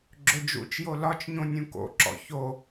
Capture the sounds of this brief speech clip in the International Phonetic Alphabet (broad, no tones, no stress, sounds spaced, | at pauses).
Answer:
ɡ͡ǁ ɵ d͡ʒ ṵ t͡ʃ j o l ɒ t͡ʃ ɲ õ nʲ ũ k o̰ ǁ ɔ̰ ç o